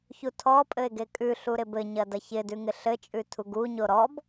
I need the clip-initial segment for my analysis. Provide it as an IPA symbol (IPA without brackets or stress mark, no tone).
ç